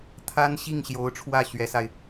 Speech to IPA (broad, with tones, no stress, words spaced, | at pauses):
t̪ʰa˥nɕi˥˩ŋɕjo˧˥ʊ̯ʈ͡ʂʰwä˥˩ ɕɥɛ˧˥sa˧ɪ̯